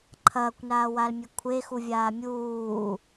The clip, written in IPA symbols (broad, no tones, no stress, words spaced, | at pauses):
ǃʰɐːkʷnaːwalmʲe kʷʰexuvʲaː mʲuː